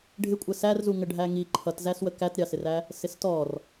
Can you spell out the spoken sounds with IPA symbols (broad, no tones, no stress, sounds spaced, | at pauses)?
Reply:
ɖʱ ɪ kʷʼ ə s æ r z u ŋ ə ɖʱ æ ŋ i ǃʰ ʌ t z æ s w ə k æ t ɾʲ ɑ s ɪ r æ | s ɪ s t ɔ r